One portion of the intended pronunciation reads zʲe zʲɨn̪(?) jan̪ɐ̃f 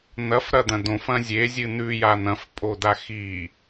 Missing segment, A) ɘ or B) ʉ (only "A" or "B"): B